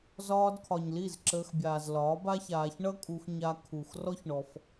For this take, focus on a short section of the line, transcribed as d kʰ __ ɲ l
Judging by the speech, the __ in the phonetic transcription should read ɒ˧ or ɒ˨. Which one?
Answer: ɒ˨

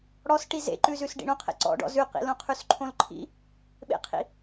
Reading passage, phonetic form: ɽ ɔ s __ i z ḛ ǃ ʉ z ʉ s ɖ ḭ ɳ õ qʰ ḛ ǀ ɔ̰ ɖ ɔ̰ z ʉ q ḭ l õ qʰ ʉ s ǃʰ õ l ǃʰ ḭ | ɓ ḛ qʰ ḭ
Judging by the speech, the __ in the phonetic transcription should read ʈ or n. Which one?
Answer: ʈ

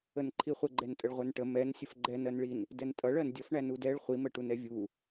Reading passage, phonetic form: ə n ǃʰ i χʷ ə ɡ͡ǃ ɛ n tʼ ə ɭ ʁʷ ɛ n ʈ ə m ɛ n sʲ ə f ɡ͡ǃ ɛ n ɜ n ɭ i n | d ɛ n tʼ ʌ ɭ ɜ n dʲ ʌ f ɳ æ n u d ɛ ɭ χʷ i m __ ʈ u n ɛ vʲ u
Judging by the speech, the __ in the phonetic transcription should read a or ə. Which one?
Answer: ə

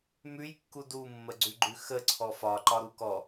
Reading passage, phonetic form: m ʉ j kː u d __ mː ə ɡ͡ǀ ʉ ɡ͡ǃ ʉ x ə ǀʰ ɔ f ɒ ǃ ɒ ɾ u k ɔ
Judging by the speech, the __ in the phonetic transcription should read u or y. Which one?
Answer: u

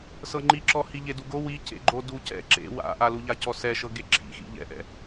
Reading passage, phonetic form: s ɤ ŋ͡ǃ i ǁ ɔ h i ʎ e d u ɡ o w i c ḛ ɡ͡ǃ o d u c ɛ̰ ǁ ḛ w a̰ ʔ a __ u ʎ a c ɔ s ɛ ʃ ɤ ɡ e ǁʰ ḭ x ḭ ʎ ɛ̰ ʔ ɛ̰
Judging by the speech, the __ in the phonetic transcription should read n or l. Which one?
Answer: l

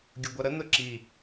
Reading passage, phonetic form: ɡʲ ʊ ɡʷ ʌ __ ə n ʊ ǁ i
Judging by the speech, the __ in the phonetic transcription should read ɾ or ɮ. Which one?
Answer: ɾ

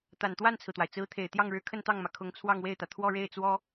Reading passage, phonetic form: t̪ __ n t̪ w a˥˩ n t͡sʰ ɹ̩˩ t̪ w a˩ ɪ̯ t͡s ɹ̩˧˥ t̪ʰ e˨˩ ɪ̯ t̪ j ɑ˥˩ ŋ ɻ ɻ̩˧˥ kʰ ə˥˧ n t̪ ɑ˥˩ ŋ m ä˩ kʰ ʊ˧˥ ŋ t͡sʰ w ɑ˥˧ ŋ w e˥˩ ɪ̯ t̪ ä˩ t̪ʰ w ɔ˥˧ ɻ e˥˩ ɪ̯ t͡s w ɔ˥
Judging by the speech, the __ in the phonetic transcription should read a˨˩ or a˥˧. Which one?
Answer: a˨˩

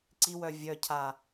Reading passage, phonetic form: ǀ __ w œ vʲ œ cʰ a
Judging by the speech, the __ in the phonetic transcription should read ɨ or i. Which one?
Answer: i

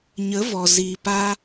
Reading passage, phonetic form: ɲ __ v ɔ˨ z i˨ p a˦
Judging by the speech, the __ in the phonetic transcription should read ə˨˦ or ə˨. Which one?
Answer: ə˨˦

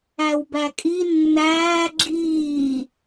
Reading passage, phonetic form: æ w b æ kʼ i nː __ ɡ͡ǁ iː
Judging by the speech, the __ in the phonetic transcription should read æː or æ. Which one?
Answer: æː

